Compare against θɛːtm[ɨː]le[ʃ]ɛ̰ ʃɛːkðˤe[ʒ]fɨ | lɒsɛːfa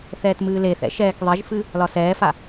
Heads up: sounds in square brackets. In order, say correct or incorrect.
correct, incorrect: θ, correct

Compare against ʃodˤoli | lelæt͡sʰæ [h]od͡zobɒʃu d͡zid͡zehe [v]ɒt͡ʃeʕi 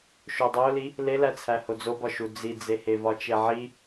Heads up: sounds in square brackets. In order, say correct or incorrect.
correct, correct

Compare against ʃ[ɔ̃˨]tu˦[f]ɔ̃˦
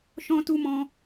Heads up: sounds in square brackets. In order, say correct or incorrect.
incorrect: ɔ̃˦, incorrect: m

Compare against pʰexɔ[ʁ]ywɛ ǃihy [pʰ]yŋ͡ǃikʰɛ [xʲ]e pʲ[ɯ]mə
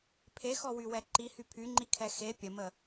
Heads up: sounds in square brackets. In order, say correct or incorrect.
incorrect: w, correct, incorrect: x, incorrect: ə

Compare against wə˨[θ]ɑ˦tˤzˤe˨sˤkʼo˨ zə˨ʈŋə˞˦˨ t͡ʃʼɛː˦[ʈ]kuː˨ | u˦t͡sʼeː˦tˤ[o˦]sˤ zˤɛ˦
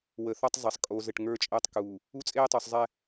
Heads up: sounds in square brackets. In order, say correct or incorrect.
correct, incorrect: tˤ, incorrect: o˨

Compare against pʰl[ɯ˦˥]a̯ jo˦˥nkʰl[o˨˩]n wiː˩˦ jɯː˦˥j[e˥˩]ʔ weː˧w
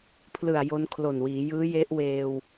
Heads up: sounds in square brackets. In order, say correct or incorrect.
incorrect: ɯ˨˩, correct, incorrect: e˦˥

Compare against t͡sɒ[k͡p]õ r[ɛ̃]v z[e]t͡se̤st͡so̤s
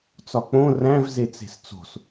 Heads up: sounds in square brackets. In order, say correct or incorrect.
correct, incorrect: æ̃, correct

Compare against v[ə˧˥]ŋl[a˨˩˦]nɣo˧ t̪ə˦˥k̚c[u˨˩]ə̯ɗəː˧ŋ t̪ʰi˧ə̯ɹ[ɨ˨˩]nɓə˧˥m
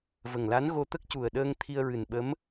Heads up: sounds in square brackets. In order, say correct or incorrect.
incorrect: ə˨˩, incorrect: a˧˥, correct, correct

